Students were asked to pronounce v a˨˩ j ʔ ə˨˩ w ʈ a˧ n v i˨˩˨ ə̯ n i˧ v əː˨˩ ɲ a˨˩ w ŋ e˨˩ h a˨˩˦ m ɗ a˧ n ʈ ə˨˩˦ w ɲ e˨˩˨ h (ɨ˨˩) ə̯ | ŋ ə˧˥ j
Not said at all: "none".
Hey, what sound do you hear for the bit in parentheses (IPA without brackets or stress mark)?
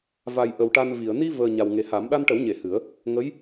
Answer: ɨ˨˩˦